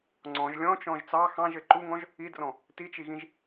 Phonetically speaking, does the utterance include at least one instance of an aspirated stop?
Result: no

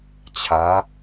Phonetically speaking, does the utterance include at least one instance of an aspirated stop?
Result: yes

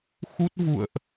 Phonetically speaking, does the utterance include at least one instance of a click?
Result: no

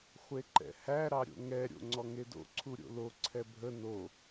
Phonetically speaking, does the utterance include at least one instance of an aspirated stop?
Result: yes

